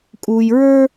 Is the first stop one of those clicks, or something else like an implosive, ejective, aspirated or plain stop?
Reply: ejective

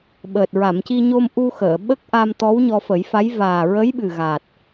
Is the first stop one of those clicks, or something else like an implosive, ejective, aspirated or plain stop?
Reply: implosive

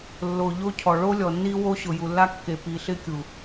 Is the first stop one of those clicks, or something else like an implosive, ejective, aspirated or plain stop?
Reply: aspirated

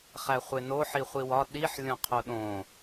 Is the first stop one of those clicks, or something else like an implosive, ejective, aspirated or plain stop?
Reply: implosive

